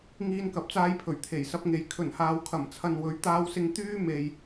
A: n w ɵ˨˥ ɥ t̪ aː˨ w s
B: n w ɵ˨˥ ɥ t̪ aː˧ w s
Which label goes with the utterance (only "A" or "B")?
B